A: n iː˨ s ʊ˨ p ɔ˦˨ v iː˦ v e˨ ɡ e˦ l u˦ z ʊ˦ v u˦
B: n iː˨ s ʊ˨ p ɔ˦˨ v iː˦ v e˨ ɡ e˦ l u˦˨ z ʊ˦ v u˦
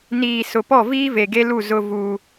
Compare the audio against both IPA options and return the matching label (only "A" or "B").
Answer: B